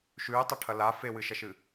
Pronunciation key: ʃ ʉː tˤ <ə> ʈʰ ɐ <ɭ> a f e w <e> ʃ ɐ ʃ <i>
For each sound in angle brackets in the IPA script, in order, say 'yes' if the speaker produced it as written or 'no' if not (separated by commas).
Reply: no, no, no, no